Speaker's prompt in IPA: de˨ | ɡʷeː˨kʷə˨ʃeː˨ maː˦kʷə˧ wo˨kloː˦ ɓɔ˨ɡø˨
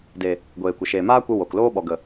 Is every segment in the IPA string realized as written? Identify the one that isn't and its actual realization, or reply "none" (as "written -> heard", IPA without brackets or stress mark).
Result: ø˨ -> ə˨